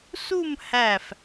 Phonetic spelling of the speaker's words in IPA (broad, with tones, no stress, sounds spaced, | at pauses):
s u˥˧ m h æ˧˩ f